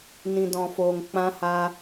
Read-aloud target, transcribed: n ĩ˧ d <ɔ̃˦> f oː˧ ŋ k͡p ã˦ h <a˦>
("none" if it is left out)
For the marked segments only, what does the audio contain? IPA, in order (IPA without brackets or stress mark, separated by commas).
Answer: ɔ̃˧, a˦